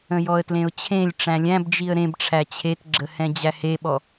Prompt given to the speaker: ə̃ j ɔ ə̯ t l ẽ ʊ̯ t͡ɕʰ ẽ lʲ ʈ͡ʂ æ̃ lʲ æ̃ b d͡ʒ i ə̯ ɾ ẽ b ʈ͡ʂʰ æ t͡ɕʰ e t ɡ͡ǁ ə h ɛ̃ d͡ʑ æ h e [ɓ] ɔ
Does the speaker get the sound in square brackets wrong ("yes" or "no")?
no